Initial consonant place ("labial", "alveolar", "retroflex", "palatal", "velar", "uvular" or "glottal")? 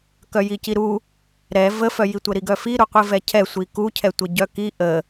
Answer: velar